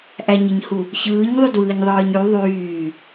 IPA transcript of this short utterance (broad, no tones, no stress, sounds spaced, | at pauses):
ʔ æ ɲ i ɲ h u | ç ɯː ɲ ðˤ y d w ɯː ɲ ðˤ ɯː ɲ y ðˤ yː